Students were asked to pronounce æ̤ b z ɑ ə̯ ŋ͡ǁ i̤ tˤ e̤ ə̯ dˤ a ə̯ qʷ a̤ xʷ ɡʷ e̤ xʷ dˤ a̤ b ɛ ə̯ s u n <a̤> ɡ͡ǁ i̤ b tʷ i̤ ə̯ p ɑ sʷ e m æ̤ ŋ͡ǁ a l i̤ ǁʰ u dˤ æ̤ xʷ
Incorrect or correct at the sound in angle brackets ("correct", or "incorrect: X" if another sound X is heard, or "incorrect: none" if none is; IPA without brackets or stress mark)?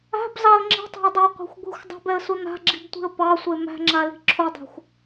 correct